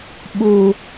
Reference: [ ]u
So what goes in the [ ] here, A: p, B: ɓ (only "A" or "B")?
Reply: B